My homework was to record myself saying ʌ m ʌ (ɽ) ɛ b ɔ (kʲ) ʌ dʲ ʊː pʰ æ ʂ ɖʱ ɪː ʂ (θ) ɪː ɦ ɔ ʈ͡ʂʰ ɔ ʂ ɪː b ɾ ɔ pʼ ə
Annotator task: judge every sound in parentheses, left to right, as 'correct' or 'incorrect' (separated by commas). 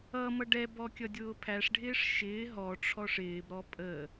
incorrect, correct, incorrect